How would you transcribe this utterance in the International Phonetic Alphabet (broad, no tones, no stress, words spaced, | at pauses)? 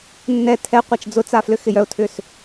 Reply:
nːɛ tʰɛ qʷat͡ʃd͡zʊt͡sa flʏxɪjœʊ̯tʰʏs